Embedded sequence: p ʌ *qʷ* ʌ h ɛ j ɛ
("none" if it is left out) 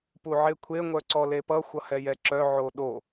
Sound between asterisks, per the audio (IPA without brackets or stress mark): xʷ